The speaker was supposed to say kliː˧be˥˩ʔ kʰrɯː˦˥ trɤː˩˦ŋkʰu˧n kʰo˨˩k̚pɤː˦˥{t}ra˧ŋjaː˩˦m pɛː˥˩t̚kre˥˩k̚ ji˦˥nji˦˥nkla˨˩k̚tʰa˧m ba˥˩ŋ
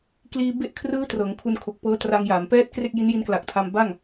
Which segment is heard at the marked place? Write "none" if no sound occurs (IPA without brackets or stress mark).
t